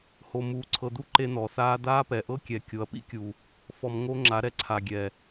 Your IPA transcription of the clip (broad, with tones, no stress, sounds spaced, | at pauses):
h o˧ m uː˧ ǀʰ ɤ˧ d u˦ ǃ e˧ n ɔ˨ s aː˦ d aː˦ p ɛ˨ ʔ ɤ˦ kʲ ɛ˨ kʲ o˨˦ ɐ̯ p ḭ˦ kʲ uː˨ | f ɔ˧ m ŋ o˦ ŋ͡ǁ a˨˦ ɾ ɛ˧ ǀʰ a˨ ɡʲ ɛː˨